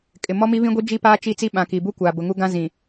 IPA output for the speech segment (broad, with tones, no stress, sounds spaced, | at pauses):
kʼ ɪ˨ m ɔ˦ m i˦ β ĩ˦ ɡʷ i˦ d͡ʒ i˦ p aː˦ t͡ʃ i˦˨ t͡s i˦ ɓ ã˨ k i˨ b u˦ kʷ aː˨ b ʊ˨ ŋ u˦ ɡ ã˦ z ĩ˨